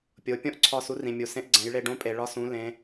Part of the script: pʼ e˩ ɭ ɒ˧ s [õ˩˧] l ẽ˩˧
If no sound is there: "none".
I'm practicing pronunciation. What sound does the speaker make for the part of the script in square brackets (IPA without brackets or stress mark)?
ũ˩˧